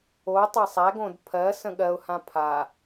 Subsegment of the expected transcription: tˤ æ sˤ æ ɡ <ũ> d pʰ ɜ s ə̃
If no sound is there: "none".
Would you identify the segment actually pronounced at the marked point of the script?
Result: õ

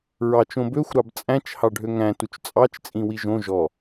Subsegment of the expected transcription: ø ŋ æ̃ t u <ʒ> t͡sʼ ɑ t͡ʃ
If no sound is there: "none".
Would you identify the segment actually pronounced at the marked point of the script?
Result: t͡ʃ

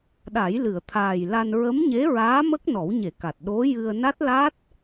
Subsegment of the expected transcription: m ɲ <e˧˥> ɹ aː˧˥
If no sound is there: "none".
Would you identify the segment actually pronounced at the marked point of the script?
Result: e˧˥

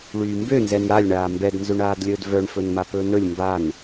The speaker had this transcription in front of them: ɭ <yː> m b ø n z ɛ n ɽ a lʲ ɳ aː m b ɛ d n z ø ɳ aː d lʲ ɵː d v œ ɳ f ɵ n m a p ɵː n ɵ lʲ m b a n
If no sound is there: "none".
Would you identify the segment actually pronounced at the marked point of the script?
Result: yː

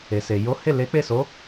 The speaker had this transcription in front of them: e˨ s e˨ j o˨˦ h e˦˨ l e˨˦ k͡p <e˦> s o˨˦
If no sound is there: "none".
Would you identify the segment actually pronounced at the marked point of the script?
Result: e˦˨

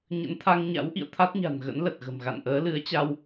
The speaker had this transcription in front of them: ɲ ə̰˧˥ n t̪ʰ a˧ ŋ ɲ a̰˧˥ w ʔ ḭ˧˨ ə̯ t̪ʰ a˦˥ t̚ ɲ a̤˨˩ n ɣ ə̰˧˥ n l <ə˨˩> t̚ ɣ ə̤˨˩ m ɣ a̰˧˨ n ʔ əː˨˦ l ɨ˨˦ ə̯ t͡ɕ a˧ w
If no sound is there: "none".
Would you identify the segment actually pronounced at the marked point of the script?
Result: ə˨˩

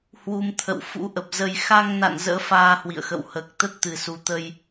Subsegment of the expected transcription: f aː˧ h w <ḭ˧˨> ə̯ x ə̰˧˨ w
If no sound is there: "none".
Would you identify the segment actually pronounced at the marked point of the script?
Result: ḭ˧˨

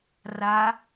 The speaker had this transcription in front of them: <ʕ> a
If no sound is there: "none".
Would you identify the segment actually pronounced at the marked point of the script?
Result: r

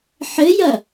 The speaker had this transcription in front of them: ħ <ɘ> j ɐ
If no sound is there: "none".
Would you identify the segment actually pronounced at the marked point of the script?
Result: ɘ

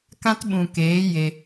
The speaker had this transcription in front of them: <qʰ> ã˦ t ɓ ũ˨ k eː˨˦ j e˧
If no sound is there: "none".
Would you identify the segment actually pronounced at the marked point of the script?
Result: k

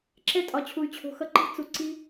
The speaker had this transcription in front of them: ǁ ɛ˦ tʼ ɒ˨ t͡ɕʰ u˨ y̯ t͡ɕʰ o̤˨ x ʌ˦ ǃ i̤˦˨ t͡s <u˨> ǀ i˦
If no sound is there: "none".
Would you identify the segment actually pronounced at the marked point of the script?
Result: u˨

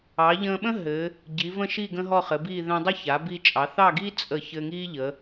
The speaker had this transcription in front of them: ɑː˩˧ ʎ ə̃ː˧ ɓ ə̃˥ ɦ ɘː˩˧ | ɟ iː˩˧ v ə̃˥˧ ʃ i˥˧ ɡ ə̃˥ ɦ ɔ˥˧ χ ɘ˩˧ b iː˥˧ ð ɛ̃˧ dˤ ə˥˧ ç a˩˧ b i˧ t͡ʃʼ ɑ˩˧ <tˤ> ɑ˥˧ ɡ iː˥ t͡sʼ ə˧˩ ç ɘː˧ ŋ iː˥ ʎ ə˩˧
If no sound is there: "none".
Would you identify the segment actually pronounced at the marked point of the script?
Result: θ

